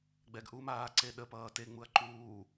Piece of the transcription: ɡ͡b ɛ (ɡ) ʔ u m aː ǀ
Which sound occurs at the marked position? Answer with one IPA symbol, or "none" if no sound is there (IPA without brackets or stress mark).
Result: ɡ